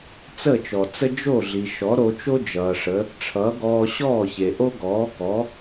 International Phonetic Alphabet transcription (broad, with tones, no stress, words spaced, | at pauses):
t͡sə˥˩t͡ʃɔ˩t͡sə˥ d͡ʒo˥˩ɮi˩ ʃɔ˩˥ɾo˧t͡ʃo˥ d͡ʒʌː˩ʂə˩˥ | ʈ͡ʂʰʌː˩˥ɡɔː˧ ɕɔː˥˩çe˩ ʔo˥ɡɔː˩˥kɔ˩˥